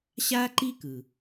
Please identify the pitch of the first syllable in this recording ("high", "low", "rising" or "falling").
high